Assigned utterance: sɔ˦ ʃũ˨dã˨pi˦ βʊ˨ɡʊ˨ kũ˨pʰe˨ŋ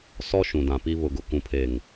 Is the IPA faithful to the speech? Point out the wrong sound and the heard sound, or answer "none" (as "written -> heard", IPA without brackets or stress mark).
none